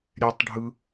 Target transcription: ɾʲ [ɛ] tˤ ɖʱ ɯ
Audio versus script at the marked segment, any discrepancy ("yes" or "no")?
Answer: no